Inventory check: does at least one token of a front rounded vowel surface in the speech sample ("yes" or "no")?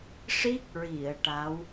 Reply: no